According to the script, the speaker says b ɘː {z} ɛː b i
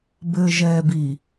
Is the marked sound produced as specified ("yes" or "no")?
no